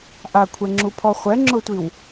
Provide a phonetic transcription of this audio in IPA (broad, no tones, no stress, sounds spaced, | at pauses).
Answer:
ʔ a kʷʰ ɛ ŋ͡ǁ u pʰ ɔ χʷ ɛ ŋ͡ǁ ʊ tʷ i w